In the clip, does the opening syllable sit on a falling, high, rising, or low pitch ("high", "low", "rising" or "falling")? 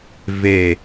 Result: low